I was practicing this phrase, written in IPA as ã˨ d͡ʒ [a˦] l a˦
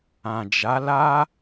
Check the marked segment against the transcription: incorrect: a˨˦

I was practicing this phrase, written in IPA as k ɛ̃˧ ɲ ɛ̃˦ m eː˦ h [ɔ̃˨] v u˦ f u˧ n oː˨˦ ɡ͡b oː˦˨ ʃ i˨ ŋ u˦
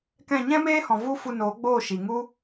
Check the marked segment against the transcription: correct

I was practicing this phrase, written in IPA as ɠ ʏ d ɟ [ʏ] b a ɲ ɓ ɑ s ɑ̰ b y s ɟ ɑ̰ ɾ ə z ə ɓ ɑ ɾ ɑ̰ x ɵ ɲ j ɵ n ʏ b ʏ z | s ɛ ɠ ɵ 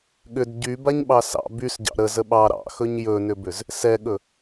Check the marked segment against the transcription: incorrect: y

